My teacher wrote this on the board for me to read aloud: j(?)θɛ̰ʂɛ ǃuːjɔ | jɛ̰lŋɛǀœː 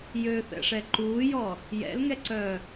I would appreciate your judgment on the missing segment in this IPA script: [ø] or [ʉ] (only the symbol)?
ø